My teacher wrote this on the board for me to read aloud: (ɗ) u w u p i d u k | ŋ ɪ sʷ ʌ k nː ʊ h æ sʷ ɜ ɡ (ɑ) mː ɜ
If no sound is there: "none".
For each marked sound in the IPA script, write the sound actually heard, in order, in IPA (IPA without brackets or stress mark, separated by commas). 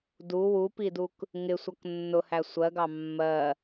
d, ɑ